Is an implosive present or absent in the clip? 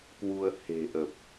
absent